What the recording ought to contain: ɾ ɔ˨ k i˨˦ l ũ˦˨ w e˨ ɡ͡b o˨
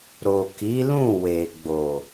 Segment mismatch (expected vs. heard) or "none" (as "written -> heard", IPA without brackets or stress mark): ɔ˨ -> o˨